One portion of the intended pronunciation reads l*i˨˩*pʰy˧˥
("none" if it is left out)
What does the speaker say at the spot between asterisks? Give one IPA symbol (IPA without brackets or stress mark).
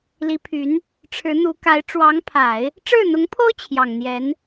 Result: i˧˥